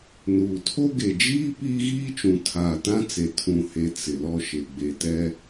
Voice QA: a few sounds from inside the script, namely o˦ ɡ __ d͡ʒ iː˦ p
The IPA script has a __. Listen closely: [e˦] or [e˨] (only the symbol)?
e˨